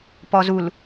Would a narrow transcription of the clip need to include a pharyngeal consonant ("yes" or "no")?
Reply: no